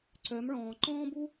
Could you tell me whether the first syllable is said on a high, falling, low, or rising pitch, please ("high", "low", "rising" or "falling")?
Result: rising